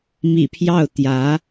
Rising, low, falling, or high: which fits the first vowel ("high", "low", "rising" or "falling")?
low